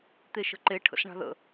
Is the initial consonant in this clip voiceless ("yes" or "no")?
yes